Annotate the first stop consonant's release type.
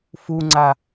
click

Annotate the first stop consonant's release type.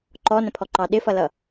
click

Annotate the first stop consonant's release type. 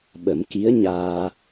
implosive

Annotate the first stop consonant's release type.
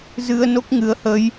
plain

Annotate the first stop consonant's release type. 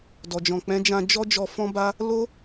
plain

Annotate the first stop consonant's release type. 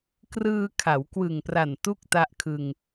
plain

